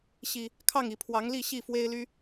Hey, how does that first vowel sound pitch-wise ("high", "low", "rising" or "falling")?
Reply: low